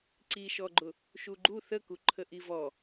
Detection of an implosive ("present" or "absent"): absent